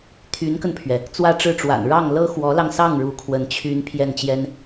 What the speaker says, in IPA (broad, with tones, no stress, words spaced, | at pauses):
t̪ʰy˧˥nkə˧npʰɥɛ˩ | t͡swä˥˧ʈ͡ʂɻ̩˥˩ʈ͡ʂwa̰˨˩n ɻɑ˥˩ŋ lɤ˥ xwɔ˧˥lɑ˧ŋsɑ˥˩ŋ ɻu˧˥kʰwə˧˥n t͡ɕʰy˥n pʰjɛ˥˩nt͡ɕjɛ˥n